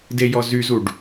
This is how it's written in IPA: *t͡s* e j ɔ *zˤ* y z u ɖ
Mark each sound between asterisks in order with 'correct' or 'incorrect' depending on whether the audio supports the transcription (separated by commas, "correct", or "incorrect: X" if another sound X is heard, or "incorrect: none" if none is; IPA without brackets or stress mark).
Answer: incorrect: d, incorrect: z